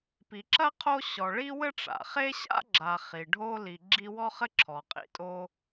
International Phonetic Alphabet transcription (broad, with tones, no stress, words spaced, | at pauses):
pi˨ǁɐ˥qʰo˦ ɕɔ˨ ɭi˦wɘ˦ ʈ͡ʂa̰˩χe˥ɕa̰˥ ɡ͡ǁa˨χi˩ɖʱo˦ li˨ɡ͡ǁi˦ wɔ˦χɘ˦ǁʰɔ˩ qʼḭ˨tʼo˦